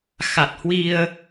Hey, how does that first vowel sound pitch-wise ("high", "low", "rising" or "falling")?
low